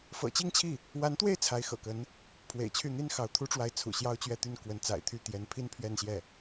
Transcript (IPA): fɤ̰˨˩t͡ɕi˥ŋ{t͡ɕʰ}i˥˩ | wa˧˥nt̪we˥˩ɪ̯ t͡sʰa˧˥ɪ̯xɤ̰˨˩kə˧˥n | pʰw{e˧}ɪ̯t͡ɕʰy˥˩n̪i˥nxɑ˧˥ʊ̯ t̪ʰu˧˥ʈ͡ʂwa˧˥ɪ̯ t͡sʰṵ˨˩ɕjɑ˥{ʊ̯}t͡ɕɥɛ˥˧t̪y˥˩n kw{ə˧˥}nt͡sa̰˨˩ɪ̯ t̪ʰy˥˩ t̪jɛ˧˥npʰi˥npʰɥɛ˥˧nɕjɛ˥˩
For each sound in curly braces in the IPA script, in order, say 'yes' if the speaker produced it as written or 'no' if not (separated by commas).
yes, no, yes, yes